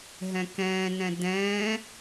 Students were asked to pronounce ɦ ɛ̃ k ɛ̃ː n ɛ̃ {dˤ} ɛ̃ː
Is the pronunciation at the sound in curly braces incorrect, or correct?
incorrect